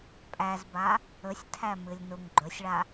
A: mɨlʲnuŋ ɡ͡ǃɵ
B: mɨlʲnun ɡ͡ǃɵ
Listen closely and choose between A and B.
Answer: A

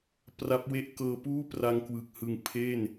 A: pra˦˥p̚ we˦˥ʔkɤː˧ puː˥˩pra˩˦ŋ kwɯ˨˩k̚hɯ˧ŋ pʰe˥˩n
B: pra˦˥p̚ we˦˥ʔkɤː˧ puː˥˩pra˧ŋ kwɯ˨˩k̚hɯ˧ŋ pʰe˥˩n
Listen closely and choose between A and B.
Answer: B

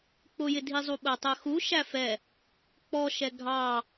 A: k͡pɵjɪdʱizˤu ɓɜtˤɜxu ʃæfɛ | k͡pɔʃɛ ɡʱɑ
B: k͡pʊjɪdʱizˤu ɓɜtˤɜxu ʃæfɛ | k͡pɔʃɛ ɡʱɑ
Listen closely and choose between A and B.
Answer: B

